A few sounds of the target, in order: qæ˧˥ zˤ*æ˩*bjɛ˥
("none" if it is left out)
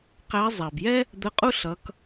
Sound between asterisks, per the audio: æ˩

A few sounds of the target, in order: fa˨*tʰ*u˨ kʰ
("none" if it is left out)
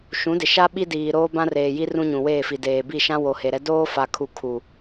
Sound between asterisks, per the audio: kʰ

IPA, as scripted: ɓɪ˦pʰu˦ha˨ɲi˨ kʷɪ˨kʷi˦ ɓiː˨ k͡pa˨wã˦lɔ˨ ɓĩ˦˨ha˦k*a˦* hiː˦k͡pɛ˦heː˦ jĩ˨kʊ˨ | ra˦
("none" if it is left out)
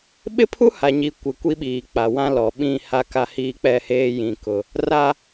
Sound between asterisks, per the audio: a˦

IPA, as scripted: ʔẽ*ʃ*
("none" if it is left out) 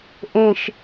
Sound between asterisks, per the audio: ʃ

